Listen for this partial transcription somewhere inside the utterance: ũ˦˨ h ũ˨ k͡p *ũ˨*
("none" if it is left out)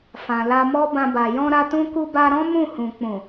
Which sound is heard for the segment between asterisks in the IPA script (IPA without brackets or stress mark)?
ũ˨